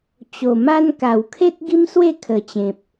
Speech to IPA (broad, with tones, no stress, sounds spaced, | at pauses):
t͡ɕ o˨˩ m a˦ n k a˨˩ w kʰ e˦ t̚ ɡ i˦ m s w e˥˧ kʰ ə˨˩ t͡ɕ ẽ˨ p̚